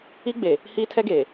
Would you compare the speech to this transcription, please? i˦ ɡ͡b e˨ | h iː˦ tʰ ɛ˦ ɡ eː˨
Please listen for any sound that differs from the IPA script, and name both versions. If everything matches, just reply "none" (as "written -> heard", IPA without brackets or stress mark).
none